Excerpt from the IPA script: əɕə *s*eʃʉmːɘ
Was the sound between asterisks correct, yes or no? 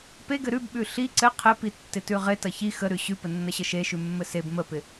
no